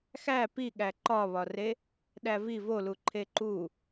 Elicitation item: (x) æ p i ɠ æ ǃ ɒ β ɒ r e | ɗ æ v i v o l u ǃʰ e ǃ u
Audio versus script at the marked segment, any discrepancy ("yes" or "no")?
no